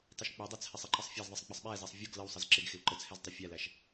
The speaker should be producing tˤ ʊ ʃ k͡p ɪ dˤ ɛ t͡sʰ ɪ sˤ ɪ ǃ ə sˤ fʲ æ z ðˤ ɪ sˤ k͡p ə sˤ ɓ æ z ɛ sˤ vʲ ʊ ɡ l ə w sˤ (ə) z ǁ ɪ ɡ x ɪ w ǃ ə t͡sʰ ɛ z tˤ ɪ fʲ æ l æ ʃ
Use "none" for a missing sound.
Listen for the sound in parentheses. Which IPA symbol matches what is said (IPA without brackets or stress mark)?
ə